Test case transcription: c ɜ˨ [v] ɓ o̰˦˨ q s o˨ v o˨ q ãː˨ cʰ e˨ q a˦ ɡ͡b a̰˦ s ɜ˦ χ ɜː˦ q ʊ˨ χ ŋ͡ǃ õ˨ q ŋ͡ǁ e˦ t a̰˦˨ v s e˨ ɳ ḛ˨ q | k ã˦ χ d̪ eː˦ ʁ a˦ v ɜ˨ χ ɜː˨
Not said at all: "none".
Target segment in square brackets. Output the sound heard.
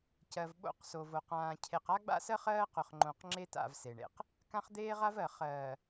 v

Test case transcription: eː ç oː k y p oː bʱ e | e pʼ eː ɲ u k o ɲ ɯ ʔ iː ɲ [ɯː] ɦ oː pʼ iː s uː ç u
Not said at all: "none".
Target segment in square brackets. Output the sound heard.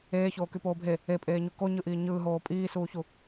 ɯː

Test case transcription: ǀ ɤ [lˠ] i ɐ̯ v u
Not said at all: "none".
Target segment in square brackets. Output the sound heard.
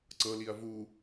l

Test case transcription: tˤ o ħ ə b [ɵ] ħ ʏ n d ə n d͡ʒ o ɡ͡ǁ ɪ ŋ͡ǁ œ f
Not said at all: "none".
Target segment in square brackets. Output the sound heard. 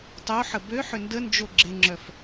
ø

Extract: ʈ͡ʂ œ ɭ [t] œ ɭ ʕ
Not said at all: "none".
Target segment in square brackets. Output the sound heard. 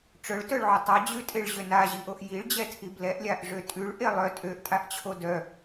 t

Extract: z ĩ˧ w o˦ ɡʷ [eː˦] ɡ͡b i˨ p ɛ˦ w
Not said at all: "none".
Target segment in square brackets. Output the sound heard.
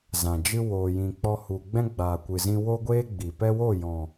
eː˦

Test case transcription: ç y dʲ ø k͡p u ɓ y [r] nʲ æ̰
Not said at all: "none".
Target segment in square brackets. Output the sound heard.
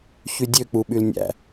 l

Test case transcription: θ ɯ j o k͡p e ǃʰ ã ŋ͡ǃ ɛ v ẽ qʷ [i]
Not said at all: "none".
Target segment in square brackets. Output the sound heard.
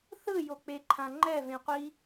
i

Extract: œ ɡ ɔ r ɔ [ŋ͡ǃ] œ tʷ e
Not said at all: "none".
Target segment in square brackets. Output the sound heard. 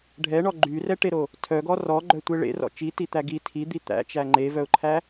ɡ͡ǃ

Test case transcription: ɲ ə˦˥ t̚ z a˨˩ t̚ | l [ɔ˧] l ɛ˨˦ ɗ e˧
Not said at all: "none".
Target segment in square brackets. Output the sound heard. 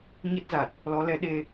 ɔ˨˦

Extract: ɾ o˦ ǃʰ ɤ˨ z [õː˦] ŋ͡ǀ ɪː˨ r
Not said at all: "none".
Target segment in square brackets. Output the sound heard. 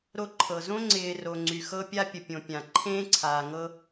õ˦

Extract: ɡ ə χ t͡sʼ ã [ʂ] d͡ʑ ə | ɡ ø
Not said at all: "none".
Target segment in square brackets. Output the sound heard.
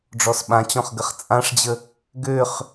ʂ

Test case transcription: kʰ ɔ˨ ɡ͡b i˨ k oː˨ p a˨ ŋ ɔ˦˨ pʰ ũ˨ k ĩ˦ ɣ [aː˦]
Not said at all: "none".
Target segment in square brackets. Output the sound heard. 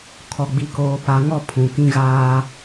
aː˦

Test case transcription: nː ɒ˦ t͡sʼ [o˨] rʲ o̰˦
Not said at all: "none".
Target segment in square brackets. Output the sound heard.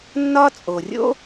o˨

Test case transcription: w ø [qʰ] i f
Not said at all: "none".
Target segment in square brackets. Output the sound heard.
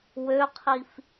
qʰ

